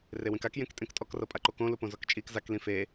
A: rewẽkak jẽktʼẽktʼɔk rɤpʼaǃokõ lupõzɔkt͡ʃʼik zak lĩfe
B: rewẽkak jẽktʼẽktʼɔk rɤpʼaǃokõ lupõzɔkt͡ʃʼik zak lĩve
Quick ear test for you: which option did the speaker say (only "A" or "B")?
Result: A